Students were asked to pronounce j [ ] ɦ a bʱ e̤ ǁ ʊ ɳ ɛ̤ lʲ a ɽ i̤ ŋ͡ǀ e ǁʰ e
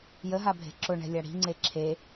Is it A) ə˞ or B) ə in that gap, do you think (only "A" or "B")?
B